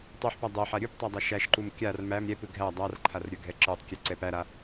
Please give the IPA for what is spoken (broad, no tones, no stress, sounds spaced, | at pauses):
tˤ u ħ p a dˤ ɛ ħ a ɾʲ u p tˤ a dˤ a ʃ æ ʃ ǃ u m kʲ a r m æ m ɾʲ ɛ p ɯ ɡʱ æ dˤ a r ǃʰ a r ɾʲ ə˞ ɡʱ ɛ ǁ ə˞ tˤ kʲ ɛ ǀ ɛ p æ ɾ a